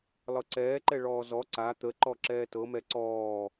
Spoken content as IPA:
lˠ ɤ ǀ ɛː ǃ ɛ ɭ ɔː z ɔ ǀ a t̪ ə ǃ ɔ ǁ ɛː t ɤ m ɛ ǀ ɔː

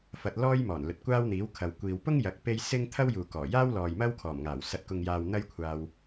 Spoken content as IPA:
f ɐ˧ t̚ l ɔː˥ j m ɔː˨˩ n l ɵ˨ t̚ kʷ aː˥ w n̪ iː˨˥ w kʰ ɐ˨ w kʷ iː˨ w p ʊ˥ ŋ j ɐ˨˥ k̚ p e˥ j s ɪ˥ ŋ t̪ʰ ɐ˥ w j uː˨ k ɔː˨˩ j aː˥ w l ɔː˨ j m ɐ˥ w kʰ ɔː˨˩ m ŋ aː˨˩ w s ɐ˨ t̚ k ʊ˨ ŋ j aː˨ w n̪ ɐ˥ j kʷʰ aː˧ w

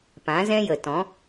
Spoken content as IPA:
p ã˨˦ z ɛ̃˦ j ə˨ t ɔ̃˨˦

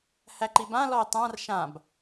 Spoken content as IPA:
h æ ǃ i b ã l ɔ e̯ tˤ ã r ʃ ã b

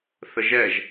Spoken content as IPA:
θ ə ʒ ɛ ʒ

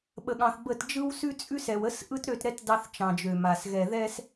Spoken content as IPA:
ɓ ə˨ ɠ ɑ̃˨ θ b ə˦˨ t d͡ʒ ɯ˦ w s ʉ˦ t͡sʼ ʉ˦ s ɛ˨ w ə˦ s ʔ ɯ˦ t ɾ ø˦˨ t ɾ ɛ˦ t d ɑ˦ θ t͡ʃ ɑ̃˨ d͡ʒ ø˨ m a˨ s ɣ ɛ˨ ð ɛ˦ s

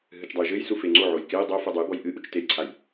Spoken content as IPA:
ɦ ɨ t͡ʃ dˤ ɐ j ʒ ɘ j s u f e ŋ͡ǀ o ʕ o j k e j dˤ o f u dˤ ɨ j b ɔ j ʔ ɨ ʔ u t͡ʃ t e j ǀʰ a j

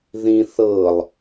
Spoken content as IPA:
ð ĩ θ ɤ lˠ

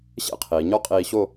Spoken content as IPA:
ɕ ḛ˥ qʰ iː˩˧ ɲ ɔ˥ qʼ iː˧ ɕ o˥˧

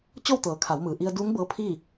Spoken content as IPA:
t͡ɕ o˥˨ w t̪ ɤː˩˧ kʰ a˩˧ w m ɯː˩ ʔ i˧ ə̯ d uː˧˥ ŋ b ɤː˧˥ pʰ iː˥˨

